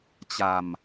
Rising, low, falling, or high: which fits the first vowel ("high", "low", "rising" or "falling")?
low